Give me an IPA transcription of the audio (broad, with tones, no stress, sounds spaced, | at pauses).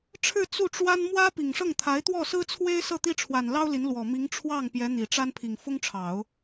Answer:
ʈ͡ʂʰ ɻ̩˥˧ t͡s u˥˩ ʈ͡ʂ w a˥ n m w ä˥ p i˨˩ ŋ ʂ ɤ˥˩ ŋ t̪ʰ a˧˥ ɪ̯ t̪ w ɔ˥˩ s ɹ̩˥ t͡sʰ w e˥ ɪ̯ s ɤ˥˩ t̪ i˥ ʈ͡ʂʰ w a˨˩ n l ɑ˥ ʊ̯ l i˧˥ n l w ɔ˨˩ m i˧˥ ŋ ʈ͡ʂʰ w ɑ˥˩ ŋ p j ɛ˧˥ n̪ i˨˩ ʈ͡ʂ a˥ n pʰ i˨˩ ŋ f ʊ˥ ŋ ʈ͡ʂʰ ɑ˨˩˦ ʊ̯